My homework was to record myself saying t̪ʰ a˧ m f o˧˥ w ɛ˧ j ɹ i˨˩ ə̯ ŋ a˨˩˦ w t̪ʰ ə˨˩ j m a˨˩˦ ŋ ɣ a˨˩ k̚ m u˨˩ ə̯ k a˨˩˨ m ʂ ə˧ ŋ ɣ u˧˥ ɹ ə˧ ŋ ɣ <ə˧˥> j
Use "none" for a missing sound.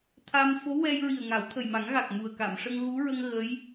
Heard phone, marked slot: ə˧˥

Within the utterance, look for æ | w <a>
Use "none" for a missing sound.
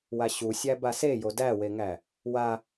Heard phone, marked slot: a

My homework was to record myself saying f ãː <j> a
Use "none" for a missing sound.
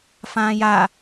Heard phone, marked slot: j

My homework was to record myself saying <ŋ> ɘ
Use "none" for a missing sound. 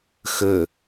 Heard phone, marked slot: x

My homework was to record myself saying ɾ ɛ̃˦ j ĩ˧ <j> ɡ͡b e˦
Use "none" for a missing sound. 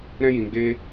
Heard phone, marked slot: none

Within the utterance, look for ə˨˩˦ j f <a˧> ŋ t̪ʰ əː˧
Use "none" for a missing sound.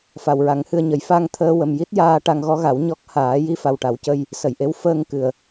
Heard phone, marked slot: a˧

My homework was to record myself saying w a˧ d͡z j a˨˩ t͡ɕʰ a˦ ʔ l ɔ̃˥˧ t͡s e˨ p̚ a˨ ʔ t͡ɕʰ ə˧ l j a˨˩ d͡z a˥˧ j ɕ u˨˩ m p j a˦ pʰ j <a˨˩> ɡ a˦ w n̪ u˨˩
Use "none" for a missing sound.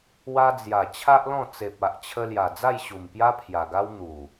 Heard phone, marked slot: a˨˩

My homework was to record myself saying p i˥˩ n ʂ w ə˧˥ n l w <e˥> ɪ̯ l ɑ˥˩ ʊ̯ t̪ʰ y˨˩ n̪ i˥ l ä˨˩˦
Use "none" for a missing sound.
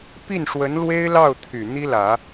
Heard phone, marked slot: e˥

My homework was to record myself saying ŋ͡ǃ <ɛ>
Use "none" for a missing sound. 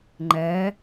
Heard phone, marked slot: ɛ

